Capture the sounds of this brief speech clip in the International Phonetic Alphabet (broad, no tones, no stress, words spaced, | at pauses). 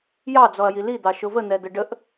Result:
jɑd͡zɔɐ̯ji lid̪ɑ ʃʊvən̪ɛd̪ə ɖəʔ